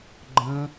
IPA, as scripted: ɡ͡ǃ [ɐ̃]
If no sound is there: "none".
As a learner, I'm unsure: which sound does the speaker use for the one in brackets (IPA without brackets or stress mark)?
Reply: ə̃